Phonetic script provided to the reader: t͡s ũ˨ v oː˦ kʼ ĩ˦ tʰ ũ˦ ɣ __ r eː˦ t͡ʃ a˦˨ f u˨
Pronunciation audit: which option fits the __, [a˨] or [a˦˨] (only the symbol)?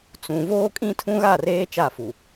a˦˨